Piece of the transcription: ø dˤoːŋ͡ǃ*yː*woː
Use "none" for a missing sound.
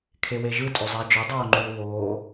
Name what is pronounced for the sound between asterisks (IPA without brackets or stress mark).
yː